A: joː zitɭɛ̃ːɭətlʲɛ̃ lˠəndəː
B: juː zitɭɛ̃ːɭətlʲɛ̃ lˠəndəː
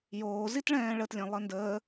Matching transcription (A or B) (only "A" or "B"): A